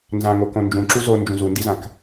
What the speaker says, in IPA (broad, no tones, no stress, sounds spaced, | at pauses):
n z ã ŋ o k õ n d͡ʒ ũ ǁ u z o n d͡ʒ ũ z u n d i z ã k